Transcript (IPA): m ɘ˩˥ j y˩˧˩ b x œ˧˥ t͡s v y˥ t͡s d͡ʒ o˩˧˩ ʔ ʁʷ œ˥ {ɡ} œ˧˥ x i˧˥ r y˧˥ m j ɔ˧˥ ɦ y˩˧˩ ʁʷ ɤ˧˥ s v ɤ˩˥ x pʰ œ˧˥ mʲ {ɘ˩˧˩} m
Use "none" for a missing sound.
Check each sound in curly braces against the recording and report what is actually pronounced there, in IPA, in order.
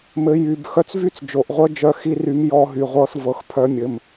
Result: d͡ʒ, ɘ˩˧˩

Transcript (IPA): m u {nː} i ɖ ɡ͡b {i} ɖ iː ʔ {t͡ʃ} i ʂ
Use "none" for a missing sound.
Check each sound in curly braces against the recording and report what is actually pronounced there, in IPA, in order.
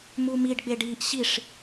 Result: m, e, ɕ

